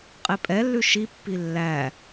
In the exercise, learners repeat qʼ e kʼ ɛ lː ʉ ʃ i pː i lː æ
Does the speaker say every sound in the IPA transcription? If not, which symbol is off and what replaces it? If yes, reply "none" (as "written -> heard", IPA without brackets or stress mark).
kʼ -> pʼ